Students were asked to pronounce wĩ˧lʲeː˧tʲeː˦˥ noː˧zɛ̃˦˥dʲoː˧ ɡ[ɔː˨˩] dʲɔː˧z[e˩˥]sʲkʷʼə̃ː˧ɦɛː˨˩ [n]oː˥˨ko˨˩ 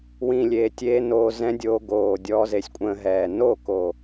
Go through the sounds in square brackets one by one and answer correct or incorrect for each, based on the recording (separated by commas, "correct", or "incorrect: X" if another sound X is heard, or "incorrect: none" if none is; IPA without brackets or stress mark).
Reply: incorrect: oː˨˩, correct, correct